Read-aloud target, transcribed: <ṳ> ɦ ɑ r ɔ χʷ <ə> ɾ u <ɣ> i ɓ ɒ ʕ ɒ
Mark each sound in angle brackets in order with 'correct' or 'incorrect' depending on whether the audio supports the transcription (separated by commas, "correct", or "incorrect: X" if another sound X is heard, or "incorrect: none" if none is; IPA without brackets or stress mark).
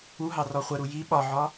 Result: incorrect: u, correct, incorrect: j